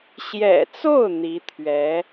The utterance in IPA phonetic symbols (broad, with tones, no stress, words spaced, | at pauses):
ɕjɛ̰˨˩t͡so˥˩ʊ̯ n̪i˧˥t̪ʰɥɛ˧˥